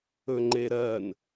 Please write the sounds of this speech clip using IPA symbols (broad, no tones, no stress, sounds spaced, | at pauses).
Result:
ɵ ŋ͡ǃ e ɾ ɜ n